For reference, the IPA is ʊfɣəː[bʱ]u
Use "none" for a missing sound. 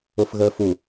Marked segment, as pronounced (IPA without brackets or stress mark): f